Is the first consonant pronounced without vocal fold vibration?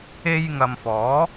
no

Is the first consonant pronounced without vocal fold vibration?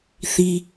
yes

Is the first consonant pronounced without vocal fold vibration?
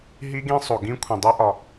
no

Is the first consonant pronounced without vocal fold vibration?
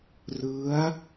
no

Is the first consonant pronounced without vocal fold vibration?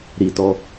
no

